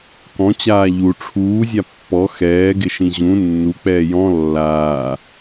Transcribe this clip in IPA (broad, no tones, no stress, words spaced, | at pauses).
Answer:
kɔ̃t͡ɕaː ʎu ʈ͡ʂʰuːzʲa pːɔ xɛːɡɪʃĩ ʑũ nːuk͡pɛː jɔ̃ lːaː